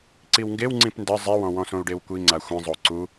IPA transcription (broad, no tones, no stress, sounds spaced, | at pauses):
ǀ i w ŋ ɡ e w ŋ͡ǀ ĩ p n d ɘ zˤ i w ɔ̃ w ɔ̃ s õ u̯ ɖ e w kʷ i ŋ͡ǀ a xʷ ĩ zˤ o ǀ u